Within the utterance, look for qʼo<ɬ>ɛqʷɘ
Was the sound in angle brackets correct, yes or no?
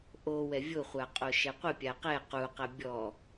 no